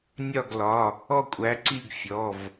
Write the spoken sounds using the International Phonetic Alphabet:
nʲ ɒ˦˨ ɡ l ɒ˩˧˩ | ɔ˦˨ kʷʼ æ˨˦ ǀ i˦˨ ɡ fʲ ɔ˩˧˩ v

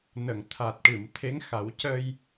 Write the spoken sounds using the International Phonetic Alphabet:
n ə˨˩˨ ŋ t̪ʰ a˨˩ t̚ ʈ ɨ˨˩˨ m t̪ʰ e˧˥ ŋ x a˨˩˦ w c ə˧ j

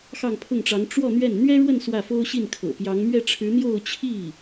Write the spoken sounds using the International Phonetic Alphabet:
x ɑ˥˧ ŋ pʰ ʊ˥˩ ŋ ʈ͡ʂ ɑ˧˥ ŋ ʈ͡ʂ w ɔ˥˧ n̪ ɥ ɛ˥˩ n n̪ ɥ ɛ˥ ɻ w ə˥˧ n s w ä˥˩ f o˥ ʊ̯ ɕ i˥˩ n kʰ ɤ̰˨˩ p j ɑ˧˥ ŋ m ɥ ɛ˥˩ ʈ͡ʂʰ ɻ̩˧˥ n̪ j o˥˧ ʊ̯ t͡ɕʰ i˥˩

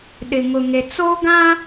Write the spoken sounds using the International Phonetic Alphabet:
ɗ ɪ˨ ŋ ʊ˨ ŋ e˨ t͡s o˦ ɡ ã˦

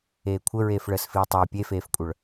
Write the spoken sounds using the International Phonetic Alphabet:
eː kʷʰ ə ɹ eː f ɭ əː s f iː tˤ əː pʲ e f eː f kʷʼ œ ɭ

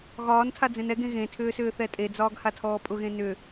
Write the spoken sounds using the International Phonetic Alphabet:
ɣ ɒː n tʰ a d͡z ẽ n ɛ ɡ ẽ ɣ ẽ tʰ ʏː s ʏː θ ɛ tʼ e d͡z ɒː ɡ h a tʰ ɔː pʼ ʊ ɣ ẽ n ʏ

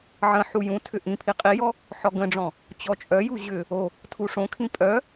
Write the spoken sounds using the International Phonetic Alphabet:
ʕ ə̃ ħ u j ũ tʰ ʏ ʔ ĩ pʰ i qʼ i j ɔ | ħ ɔ ɡ ə̃ ɖ͡ʐ ɔ̃ | t͡ɕ ɔ t͡ʃʼ œ j u ʑ ʏ | o | tʰ u ʂ õ kʰ ĩ pʼ œ

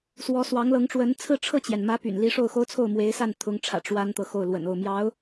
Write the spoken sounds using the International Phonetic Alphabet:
s w ɔ˧˥ s w ɑ˧˥ ŋ l ɤ˧˥ ŋ ʈ͡ʂ w ə˧˥ n t͡sʰ ɹ̩˥˧ ʈ͡ʂʰ ɤ˥˩ t͡ɕ j ɛ˩ n m ä˧˥ p y̰˨˩ n l i˧˥ ʂ o˥˩ ʊ̯ x o˥ ʊ̯ t͡sʰ o˥˩ ʊ̯ m w e˧˥ ɪ̯ s a˥˩ n t̪ʰ ʊ˧˥ ŋ ʈ͡ʂʰ ä̰˨˩ ʈ͡ʂ w a˥ n t̪ ɤ˨ x o˥˩ ʊ̯ l w ə̰˨˩ n o˥˩ ʊ̯ m j ɑ˧˥ ʊ̯

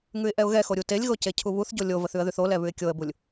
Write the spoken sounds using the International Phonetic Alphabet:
ŋ ʉ ɪ̯ ʔ ɛ ʊ̯ ɣ ɛ x o ɾʲ u t e lʲ ɣ o c e cʰ u β u θ ɟ o lʲ o v ə θ ʉ ə̯ ð ʉ θ o l ɛ β ʉ ɪ̯ kʲ o ə̯ b u lʲ

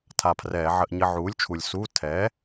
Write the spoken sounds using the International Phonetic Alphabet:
tʰ a˧˩ pʰ r ɛː˧˩˧ ʕ ə˧˥˧ ʔ ɲ ə˧˥˧ ʕ uː˩˥ lʲ t͡ʃʰ u˩ lʲ s u˧˥˧ tʰ ɛ˩˥

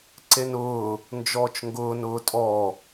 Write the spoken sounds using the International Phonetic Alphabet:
ǀ e n ʊː | n d͡ʒ ɔː t͡ʃ ŋ ɡ ʊː n ʊː tʼ ɔ

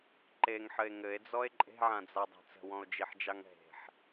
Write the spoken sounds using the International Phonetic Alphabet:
ǃ e ŋ ħ ɘ e̯ ŋ ɘ e̯ d͡z ɔ e̯ ǃʼ e̤ ʕ ã d͡z a dˤ e̤ t͡s ə̤ w ɔ̃ o̯ d͡ʒ i ħ d͡ʒ ɑ ŋ ɦ e̤ ħ

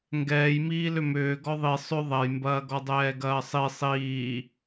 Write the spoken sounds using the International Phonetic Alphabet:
ŋ ɡ ɛː j m iː l ʏ m ʏː ɡ ɔ ðˤ i sˤ ʏ ðˤ ɐ j m b ɐː ɡ ɔ dˤ ɛː ɡ ɐː sˤ i sˤ iː

